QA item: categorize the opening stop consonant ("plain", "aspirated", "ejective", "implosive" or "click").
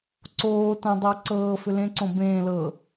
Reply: click